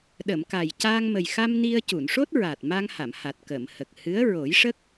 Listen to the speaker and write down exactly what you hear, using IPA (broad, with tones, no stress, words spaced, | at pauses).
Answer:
ɗə˨˩˨mka˨˩j caː˧ŋmə˨˩jxa˧m ni˧ə̯ cu˨˩˨nʂo˦˥t̚ɹa˨˩t̚ ma˧ŋha˨˩˨mha˨˩t̚ kə˨˩˨mhə˨˩k̚ hɨ˧˥ə̯ ɹo˨˩˦jʂə˦˥k̚